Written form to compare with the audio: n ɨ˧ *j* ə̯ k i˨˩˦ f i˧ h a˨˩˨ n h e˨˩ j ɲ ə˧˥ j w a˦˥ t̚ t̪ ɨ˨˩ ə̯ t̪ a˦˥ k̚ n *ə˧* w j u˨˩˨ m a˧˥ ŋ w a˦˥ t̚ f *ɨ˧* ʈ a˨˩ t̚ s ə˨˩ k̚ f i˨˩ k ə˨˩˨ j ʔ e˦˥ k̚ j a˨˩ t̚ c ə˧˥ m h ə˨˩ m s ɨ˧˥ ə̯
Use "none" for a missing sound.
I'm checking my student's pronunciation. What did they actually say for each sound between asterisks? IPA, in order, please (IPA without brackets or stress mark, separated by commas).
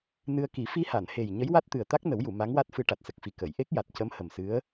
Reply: none, ə˨˩˦, ɨ˧